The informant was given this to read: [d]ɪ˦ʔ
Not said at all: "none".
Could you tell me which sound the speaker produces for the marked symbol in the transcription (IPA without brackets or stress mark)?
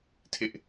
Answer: tʰ